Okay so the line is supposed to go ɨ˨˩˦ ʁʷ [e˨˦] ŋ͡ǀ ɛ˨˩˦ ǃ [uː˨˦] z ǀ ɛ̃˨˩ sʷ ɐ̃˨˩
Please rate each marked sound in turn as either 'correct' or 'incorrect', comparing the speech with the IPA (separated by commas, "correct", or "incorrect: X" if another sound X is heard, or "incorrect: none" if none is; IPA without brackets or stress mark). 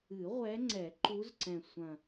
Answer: incorrect: ɛ˨˦, incorrect: u˨˦